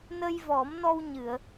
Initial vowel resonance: oral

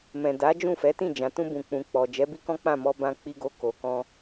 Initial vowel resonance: nasal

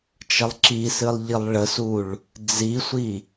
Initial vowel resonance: oral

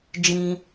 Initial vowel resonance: nasal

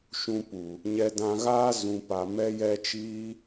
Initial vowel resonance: nasal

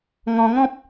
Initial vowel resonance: nasal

